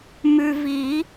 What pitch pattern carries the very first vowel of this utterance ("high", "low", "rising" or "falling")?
low